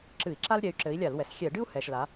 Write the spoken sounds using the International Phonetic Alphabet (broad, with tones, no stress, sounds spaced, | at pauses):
ǁ ɨ˧˩˧ i̯ ǁ a˥ l ɾʲ ɛ˨˥ y̯ ǁ ɘ˨˥ i̯ lʲ a˧˩˧ l w ɛ˩ s xʲ ɛ˧˩˧ ɖ ɨ˥ u̯ h ɛ˩ ʃ l a˩˧